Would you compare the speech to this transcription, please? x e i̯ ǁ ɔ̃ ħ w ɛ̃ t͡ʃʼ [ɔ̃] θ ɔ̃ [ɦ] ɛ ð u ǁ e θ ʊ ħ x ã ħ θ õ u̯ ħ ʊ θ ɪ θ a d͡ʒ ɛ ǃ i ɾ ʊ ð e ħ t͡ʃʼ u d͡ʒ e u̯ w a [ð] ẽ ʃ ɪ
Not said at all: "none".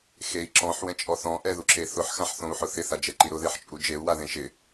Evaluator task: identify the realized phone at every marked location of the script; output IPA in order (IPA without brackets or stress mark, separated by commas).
ɔ, ʔ, ð